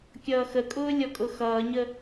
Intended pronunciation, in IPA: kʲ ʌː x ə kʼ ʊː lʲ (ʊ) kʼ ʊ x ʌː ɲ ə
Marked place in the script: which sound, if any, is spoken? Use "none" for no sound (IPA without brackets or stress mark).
ɔ